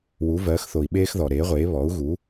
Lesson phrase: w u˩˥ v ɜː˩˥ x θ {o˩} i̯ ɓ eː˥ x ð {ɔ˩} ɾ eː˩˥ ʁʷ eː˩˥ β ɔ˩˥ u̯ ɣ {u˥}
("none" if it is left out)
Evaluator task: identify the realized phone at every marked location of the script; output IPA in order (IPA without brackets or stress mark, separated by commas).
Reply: o˩, ɔ˩, u˩˥